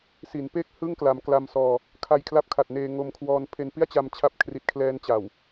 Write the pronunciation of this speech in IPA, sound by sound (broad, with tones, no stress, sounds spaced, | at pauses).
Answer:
s i˩˦ n p eː˥˩ k̚ h ɯ˥˩ ŋ k l a˩˦ m k l a˧ m s ɔː˧ | kʰ a˧ j kʰ l a˥˩ p̚ kʰ a˨˩ t̚ n eː˧ ŋ o˧ m kʰ w ɔː˧ n pʰ e˧ n p i˥˩ a̯ t͡ɕ a˧ m t͡ɕʰ a˦˥ p̚ kʰ r i˨˩ t̚ kʰ l ɛː˧ n t͡ɕ a˨˩ w